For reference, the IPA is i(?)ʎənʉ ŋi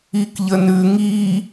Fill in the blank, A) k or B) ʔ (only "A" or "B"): A